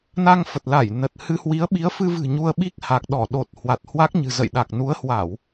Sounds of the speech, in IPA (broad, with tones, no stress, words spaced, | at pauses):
na˧ŋfə˨˩t̚la˧˩j nə˨˩t̚ hɨ˧hwi˨˦ə̯ ɓi˨˦ə̯fɨ˧vɨ̤˨˩ ɲu˧ə̯ɓi˦˥k̚ha˨˩k̚ ɗɔ˧˩ɗo˨˩t̚ hwa˨˩t̚hwa˦˥k̚ɲɨ̤˨˩ zə̰˧˨jɗa˨˩k̚nu˨˦ə̯hwa˧˩˨w